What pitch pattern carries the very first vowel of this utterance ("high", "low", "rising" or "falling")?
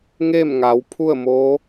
falling